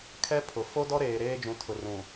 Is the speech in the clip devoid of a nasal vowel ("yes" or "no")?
no